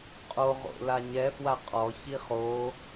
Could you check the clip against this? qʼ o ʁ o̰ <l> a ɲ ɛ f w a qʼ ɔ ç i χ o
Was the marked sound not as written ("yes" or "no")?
no